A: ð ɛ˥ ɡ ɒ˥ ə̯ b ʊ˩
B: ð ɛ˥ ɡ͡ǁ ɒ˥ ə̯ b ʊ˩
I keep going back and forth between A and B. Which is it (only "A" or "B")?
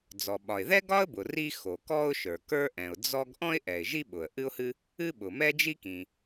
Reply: A